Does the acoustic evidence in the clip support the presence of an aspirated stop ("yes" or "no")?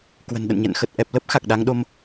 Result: no